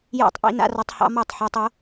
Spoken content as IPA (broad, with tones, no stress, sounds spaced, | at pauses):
j a̰˥˨ tˤ ʔ ḭ˧˥ n a̰˧˥ r ɒ˧˥ tˤ h ɑ̰˧˥ m ɒ˥˨ tˤ ħ ɑ˧˥ tˤ o˧˥